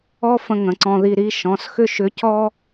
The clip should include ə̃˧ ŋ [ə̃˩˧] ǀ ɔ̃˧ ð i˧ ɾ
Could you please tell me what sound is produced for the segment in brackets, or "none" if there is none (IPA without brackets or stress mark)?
ə̃˩˧